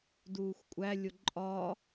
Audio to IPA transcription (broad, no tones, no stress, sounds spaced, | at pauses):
d uː xʷ kʷʼ æ lʲ o ǃʼ ɒ